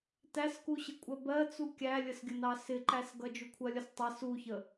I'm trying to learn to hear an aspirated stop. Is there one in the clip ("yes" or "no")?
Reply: yes